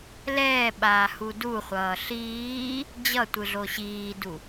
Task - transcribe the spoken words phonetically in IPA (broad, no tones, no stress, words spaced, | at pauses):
lɛːɓaːhu duχʷʌː ɬiː | d͡ʑʌtʷɯɮo ɕiːdu